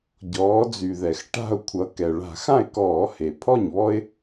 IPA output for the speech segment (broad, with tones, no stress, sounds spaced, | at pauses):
ɟ ɔː˩˧ d͡z y˩ ð ɛ˩ x ʈ a̤˧˩ ʊ̯ kʷʰ ʌ˩˧ k ɛ˩ ɭ a̤˧˩˧ x ã˥˩ ɪ̯ k ɔː˧˩˧ h e˩ pʰ ɔ˥˩ ɲ β ɔ˦ ɪ̯